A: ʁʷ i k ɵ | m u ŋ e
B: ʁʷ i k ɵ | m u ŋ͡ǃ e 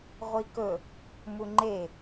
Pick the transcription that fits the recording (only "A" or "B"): B